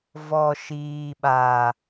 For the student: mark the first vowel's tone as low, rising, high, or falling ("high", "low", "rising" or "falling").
low